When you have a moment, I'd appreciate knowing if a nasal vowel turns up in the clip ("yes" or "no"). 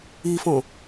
yes